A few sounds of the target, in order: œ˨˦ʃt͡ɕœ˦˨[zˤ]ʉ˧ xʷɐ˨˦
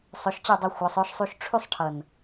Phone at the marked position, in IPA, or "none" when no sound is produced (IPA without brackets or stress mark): dˤ